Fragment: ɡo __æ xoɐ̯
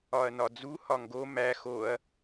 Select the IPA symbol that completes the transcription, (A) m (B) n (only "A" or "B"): A